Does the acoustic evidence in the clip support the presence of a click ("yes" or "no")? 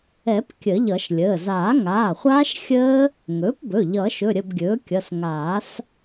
no